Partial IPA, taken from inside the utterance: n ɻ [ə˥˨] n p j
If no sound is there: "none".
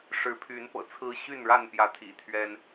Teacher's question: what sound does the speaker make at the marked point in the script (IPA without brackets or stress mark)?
a˥˨